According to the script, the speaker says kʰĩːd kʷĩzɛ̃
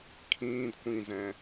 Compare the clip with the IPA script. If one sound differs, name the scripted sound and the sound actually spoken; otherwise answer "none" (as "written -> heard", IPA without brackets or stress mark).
none